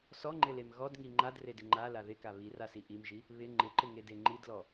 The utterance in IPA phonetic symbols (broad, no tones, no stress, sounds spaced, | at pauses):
s ɔ ŋ͡ǃ ɪ l e m ɣ ɔ d ŋ i ŋ͡ǃ a d r e d ɪ ŋ͡ǃ a l a ð ɪ k a β i r a s i ʔ i m ʒ i | β ɪ ŋ͡ǃ ɪ ǃ ɪ ŋ e d e ŋ͡ǃ i d l ɔ